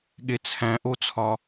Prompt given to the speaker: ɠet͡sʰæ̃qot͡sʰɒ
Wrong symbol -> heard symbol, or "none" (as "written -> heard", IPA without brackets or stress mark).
q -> ʔ